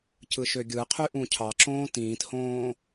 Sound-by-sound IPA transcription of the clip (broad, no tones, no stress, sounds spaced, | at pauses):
c ɯ ʃ ø ɡʲ ɯ qʰ y ʔ ũ cʰ ɑ ǁ õː t ĩː t h õː